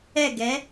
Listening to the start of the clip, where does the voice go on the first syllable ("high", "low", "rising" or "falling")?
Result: falling